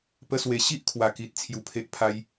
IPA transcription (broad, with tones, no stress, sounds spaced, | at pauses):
p ə˦ s w e˧ ɕ i˦ ʔ kʰ w a˨˩ k i˨ t̚ t͡sʰ j u˧ pʰ e˦ ʔ pʰ a˦ j